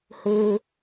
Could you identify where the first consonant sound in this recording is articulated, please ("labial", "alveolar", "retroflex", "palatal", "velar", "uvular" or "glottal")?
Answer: glottal